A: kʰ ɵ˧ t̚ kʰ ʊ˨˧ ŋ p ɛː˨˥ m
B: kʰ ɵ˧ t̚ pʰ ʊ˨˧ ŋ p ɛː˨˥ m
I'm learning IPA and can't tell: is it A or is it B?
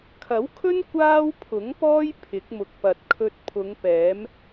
B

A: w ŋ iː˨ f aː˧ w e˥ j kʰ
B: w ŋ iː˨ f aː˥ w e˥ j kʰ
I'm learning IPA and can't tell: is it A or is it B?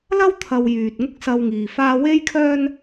B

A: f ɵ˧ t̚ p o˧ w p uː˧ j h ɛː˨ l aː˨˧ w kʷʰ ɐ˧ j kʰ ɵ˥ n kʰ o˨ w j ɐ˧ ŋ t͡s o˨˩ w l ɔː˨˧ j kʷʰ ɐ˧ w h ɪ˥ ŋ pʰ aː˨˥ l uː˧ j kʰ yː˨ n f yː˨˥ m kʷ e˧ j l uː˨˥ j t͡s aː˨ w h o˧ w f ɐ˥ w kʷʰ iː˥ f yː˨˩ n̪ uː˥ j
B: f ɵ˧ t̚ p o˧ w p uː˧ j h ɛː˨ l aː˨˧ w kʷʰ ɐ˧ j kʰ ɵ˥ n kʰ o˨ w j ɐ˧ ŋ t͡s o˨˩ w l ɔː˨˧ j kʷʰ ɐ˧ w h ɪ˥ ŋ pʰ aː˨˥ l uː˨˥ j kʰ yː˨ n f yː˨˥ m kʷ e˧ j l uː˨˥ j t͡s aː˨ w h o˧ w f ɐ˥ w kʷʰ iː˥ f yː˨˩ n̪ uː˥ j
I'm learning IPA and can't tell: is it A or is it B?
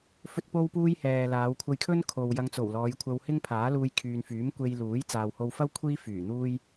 A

